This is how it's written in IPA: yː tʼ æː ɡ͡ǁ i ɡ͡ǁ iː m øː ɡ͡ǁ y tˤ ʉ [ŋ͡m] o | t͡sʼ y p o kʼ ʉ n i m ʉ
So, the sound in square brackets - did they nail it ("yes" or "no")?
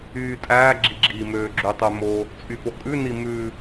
no